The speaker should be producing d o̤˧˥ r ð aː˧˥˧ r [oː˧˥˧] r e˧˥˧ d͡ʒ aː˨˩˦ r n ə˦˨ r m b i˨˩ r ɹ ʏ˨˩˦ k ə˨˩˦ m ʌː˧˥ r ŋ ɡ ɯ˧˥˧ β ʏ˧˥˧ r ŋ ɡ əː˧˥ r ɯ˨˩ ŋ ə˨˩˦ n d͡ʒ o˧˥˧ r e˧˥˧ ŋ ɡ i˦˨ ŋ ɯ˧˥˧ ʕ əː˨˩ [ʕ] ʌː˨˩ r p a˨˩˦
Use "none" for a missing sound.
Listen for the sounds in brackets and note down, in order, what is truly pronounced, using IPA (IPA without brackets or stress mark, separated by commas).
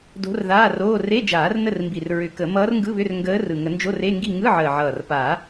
oː˧˥˧, ʕ